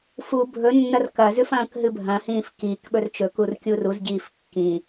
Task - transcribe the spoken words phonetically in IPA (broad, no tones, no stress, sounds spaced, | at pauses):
f u bʱ ɵ nː ɐ r k ɐ z ʉ f ɐ̃ː k ɦ ɨ bʱ ɐ̃ h ĩː f k i k ɓ ɵ r t͡ʃ ɵ k u r kʲ u r u z ɟ iː f kː ĩ